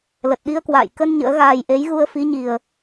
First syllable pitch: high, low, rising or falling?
low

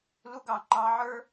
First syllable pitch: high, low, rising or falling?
high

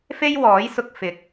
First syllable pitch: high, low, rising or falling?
high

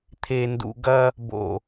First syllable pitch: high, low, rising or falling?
low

